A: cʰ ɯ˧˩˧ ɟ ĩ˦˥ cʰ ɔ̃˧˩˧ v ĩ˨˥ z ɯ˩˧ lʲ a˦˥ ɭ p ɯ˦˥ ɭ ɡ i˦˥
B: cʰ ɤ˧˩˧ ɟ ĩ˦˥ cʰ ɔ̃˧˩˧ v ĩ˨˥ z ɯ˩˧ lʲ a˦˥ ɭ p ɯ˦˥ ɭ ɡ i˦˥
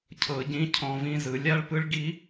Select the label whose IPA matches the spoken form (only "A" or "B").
B